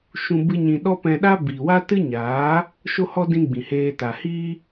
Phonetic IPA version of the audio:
ʃ ũ˧ b ɨ˦ ɲ ĩ˧ ɗ ɔ˦ p ɛ̃˧ ɗ a˦ b iː˨ w a˦ t ɨ˦ ɲ aː˨˦ | ʃ o˦ h ɔ˦ d ĩ˧ ɡ͡b ĩ˨ h eː˧ t a˨ h iː˦

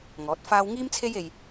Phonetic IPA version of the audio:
ŋ ɔː˨˥ t̚ f aː˥ w ŋ iː˥ m t͡sʰ e˥ j e˧ j

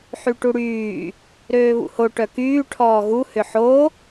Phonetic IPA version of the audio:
ħ y ʈ u ɽ yː | ɾ øː β ṵ h o ʈ œ k yː ʈʰ ɔː ɣ u h ʏ ħ o

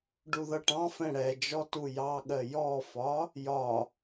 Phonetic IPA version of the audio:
ɖ u ð ʌ ʈ ɑ̃ f ɛ̃ ɽ ɛ d͡ʒ ɔ t u j ɑ ɠ ɜ j ɔ f ɒ | j ɒ

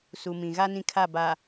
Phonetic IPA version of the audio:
s u˨ m ĩ˨ ɣ a˦ n ĩ˦ kʰ a˦˨ b a˨

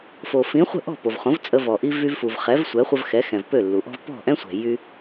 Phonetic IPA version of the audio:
f o˩ f ĩ˩˥ χʷ ə̤˥˩ ʔ ɔ̤˥˩ p o˩ v χ õ˩˥ v t͡sʼ ə˧ v ɔ˩ ʔ i˧ v y˧ v f u˩ v χ ɛ˩˥ v sʷ ɛ˩˥ χʷ ə˧ v x ɛ˩˥ x ɛ̃˩ v p ø˥˩ lː u˩ ʔ ɔ̤˥ v p ɔ̤˥˩ ʔ ɛ̃˥ sʷ ɛ̤˩ j y˥

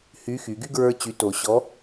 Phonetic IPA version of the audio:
h y˧˥ x y˩˧ ɡ y˥ ɡ ɹ ə˞˥ t͡ɕ y˧˥ t o˧ ɕ ɔ˧˥

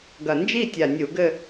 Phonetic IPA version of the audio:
ɡ ɐ˨˩ n d͡ʒ i˥˧ tʲ a˨˩ nʲ u˧˩˧ ɡ ɘ˥˧

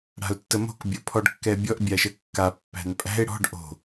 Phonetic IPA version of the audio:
ɽ a̤ ʊ̯ tː ə m o̤ k bʲ o pʰ ɔ ɖ kː ɛ bʲ ɔ ʔ bʲ a ʃ ə kː a pː æ̤ n pʼ æ̤ ɪ̯ ɽ ɔ̤ ɖ ʔ o̤

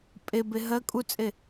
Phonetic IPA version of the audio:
pʼ e b e ɦ ɜ kʼ u t͡sʼ e

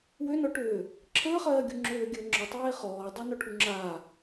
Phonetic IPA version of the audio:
w ø n ɔ ʈ øː | ǁʰ əː χ ɜː ɡʲ u ŋ͡ǁ øː ɡʲ əː ŋ͡ǁ ɔ tˤ eː χ ɔː dˤ i n ɔ ʈʰ u ŋ͡ǁ aː

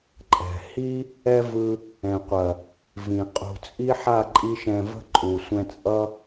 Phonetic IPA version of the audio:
ǃʼ ɛ̤˨ h i˦ | ɛ˦ v ɯ˧ | ɛ̃˨ qʷ ɐ˨ | v ĩ˨ qʼ ṳ˨ t͡sʼ i˦ ħ a˦˨ ǃʼ i˧ ʃ ɛ̃˨ v ə̤˧ ǃʼ u˨ sʷ ɛ̃˧ t͡sʼ ʌ˦

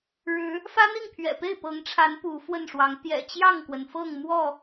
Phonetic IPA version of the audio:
ɻ ɻ̩˨˦ | f ä˦ n̪ i˥˨ ŋ pʰ ɥ ɛ̰˨˩ p e˥˨ ɪ̯ p ɤ˨˦ ŋ ʈ͡ʂʰ a˨˦ n p u˨˦ f w ə˥˨ n ʂ w ɑ˨˦ ŋ t̪ j ɛ̰˨˩ t͡ɕ j ɑ˥˨ ŋ k w ə˩ n f ɤ˥˨ ŋ m w ɔ˥˨

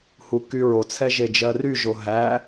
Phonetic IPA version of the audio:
h u k y ɹ o t͡sʰ ɛ ʒ e d͡ʒ ɜ r y ʒ o ɦ æ

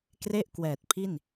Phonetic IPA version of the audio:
k r e˥˩ ʔ k w ɛː˨˩ t̚ pʰ i˥˩ n

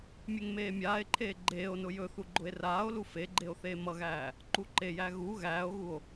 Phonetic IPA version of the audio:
mʲ e ŋ m eː mʲ aː e̯ ǃʰ eː ɡ͡ǃ eː o̯ n ʊ j ɵ θ u ɡ͡ǃ ʊ e̯ r aː o̯ l u f e ɡ͡ǃ e o̯ θ eː m ʌ ɣ æː | ǃ u ǃ e j æ ɣ u ɣ æː o̯ ɣ u o̯

